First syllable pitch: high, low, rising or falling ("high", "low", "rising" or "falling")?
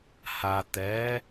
low